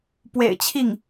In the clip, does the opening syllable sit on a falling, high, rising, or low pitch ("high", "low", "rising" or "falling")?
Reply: low